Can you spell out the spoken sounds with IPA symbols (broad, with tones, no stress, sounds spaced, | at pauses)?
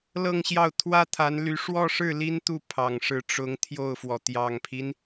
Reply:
l ɤ˥˧ ŋ ɕ j ɑ˥˩ ʊ̯ t̪ʰ w ä˥ t̪ʰ a˧˥ n l y˧˥ ʂ w ɔ˥˧ ʂ ɻ̩˥˩ l i˥ n t̪ u˥˩ pʰ ɑ˨˩ ŋ ʂ ɻ̩˧˥ ʈ͡ʂ ʊ˧˥ ŋ t̪ʰ j o˥˩ ʊ̯ f w ɔ˩ t̪ j ɑ˨˩ ŋ pʰ i˦ n